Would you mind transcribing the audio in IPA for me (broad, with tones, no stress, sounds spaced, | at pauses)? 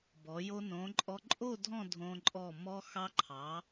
b ɔ˩˧ j o˧ n õ˩˧ ǃʼ ɔ˧ ǃʼ o˥˧ dʱ ɔ̃˥˧ dʱ õ˧ ǃʼ ɔ˧˩ m ɔ˧ x ɑ˧ ǃʰ ɑ˩˧